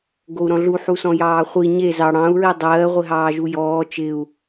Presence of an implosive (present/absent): absent